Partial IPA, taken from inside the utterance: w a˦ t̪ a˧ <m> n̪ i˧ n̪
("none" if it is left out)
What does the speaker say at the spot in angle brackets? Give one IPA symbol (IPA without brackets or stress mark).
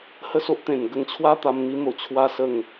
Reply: m